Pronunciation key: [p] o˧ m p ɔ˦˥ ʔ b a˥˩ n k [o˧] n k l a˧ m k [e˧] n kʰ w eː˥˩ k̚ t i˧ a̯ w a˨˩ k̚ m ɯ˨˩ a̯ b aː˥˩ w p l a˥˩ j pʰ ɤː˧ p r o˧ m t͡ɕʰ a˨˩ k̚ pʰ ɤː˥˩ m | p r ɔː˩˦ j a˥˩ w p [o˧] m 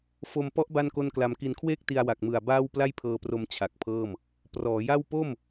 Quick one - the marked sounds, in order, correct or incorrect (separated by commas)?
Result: incorrect, incorrect, incorrect, incorrect